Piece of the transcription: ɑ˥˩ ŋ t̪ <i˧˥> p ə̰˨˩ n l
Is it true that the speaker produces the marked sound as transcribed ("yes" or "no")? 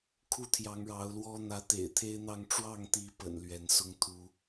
yes